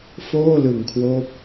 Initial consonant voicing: voiceless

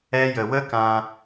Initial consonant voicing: voiced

